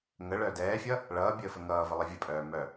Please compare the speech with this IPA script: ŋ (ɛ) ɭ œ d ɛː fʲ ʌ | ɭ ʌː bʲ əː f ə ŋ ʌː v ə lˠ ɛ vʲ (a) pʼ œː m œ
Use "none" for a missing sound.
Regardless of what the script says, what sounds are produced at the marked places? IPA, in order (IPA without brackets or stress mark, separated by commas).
ə, ə